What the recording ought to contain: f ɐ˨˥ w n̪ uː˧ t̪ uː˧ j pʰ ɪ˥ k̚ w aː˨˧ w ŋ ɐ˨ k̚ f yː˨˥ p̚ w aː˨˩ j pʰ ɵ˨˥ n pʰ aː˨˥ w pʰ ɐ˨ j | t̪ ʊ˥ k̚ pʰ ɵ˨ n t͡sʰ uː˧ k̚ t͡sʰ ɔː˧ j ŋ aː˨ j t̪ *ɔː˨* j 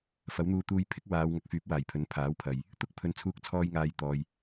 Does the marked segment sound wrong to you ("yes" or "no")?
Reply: no